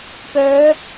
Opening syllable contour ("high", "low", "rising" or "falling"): rising